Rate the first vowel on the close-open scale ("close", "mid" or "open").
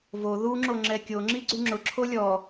mid